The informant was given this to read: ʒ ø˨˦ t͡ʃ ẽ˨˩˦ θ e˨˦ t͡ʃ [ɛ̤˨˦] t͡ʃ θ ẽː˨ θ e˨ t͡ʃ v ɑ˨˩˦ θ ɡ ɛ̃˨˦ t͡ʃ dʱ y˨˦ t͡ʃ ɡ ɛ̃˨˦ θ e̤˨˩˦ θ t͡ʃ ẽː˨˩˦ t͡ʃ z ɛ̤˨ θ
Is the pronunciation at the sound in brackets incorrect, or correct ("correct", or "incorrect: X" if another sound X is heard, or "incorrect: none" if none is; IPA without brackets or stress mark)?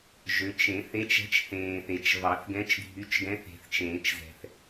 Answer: correct